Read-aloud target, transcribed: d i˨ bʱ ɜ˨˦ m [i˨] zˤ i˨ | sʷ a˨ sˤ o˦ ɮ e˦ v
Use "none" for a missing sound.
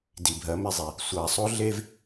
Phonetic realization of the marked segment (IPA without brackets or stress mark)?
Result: e˨